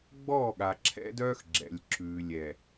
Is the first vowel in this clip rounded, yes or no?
yes